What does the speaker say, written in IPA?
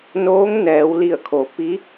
n oː˧˥ ŋ n ɛː˩˧ w l i˧˩ ə̯ kʰ o˩˧ p i˧˥

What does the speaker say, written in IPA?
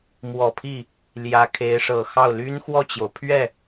m w ɔ˨˩ pʰ i˥˩ | l j ä˧˥ kʰ e˧˥ ɪ̯ ʂ ɤ˨˩ x ɑ˥˩ ʊ̯ l y˥ n x w ɔ˥˩ t͡ɕ j o˩ ʊ̯ pʰ ɥ ɛ˥˩

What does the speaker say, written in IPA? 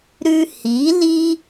ɾ ʉ˧ h i˨˦ l i˦

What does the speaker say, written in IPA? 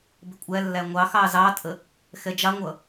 b ɪ kʷʼ æ lː æ ŋʷ ɑ x ɑ z ɑ tʼ ə | x ɛ d͡ʒ ɑ ŋʷ ʌ

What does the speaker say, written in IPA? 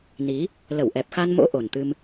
n i˨˦ | l ə˧˩ w ʔ ɛ˨˩ p̚ x a˧ n m o̰˧˥ ʔ o˨˩ n t̪ ɨ˧ m

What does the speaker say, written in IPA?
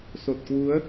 s o˨˩ t̚ k w u˨˦ ə̯

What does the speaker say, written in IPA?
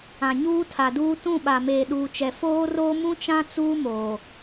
ã˨ ɲ uː˦ tʰ a˨ d uː˦ t ũ˦˨ ɓ a˨ m eː˨ ɗ uː˨ t͡ʃ ɛ˨ f oː˦ r oː˦ m ũ˦ t͡ʃ ã˦ t͡s uː˦ m oː˨

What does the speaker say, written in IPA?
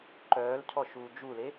ǃ œː l cʰ ɔ ʃ uː d͡ʒ u l e

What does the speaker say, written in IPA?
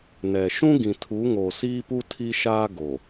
n ɛ˨ ʃ ũ˦ ɡ ĩ˨ tʰ u˨˦ ŋ oː˨ s iː˦ p u˦ tʰ i˦ ʃ aː˦ ɡ o˨

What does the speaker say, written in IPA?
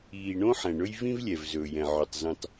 iː˨ ɳ õ˦ ħ ɛ̃˨ ɳ ɵ˦ j v ĩ˦ v lʲ ɛ˨ v z ɵː˨ j ɛ̃˨ ʕ ɵ˨ tˤ z ĩ˨ tˤ

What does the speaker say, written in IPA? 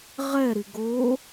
ʁ ɛ ɾ i ɡ o

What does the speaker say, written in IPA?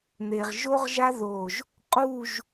n̪ e˧ ʁ ʒ o˥ ʁ ʒ a˥ ð o˧˩ ʒ | qʼ u˥˧ ʒ

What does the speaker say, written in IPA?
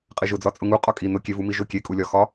qʼ e ʒ ʊ d͡z ɒ t͡sʼ ʊ ŋ u qʼ ɒ kʼ i n ʊ kʲ e v u m i ʒ ʊ kʲ e kʼ u lʲ ɒ x ɒ

